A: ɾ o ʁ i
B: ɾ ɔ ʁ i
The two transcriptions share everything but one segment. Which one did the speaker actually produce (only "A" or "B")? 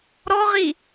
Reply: B